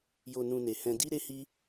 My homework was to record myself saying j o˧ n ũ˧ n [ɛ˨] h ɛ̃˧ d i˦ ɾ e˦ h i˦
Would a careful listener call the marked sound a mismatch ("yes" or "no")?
yes